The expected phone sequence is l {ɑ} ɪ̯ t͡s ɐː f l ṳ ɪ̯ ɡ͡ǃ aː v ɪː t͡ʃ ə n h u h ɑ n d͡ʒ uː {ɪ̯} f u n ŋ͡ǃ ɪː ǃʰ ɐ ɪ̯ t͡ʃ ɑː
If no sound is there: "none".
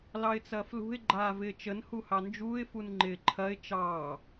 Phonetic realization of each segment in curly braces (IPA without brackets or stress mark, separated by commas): ɑ, ɪ̯